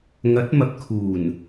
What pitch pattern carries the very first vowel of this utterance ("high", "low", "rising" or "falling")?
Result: rising